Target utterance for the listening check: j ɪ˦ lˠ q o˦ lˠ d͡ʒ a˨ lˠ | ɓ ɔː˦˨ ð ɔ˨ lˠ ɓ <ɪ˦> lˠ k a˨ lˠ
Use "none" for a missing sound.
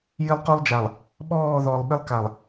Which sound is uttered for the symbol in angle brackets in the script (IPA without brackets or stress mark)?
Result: ɪ˦